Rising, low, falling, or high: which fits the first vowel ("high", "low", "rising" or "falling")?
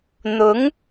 rising